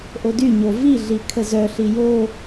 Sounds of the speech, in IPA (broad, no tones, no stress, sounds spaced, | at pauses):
ʔ o d y ɲ o v i ɮ i kʰ ə z œ ɬ i j o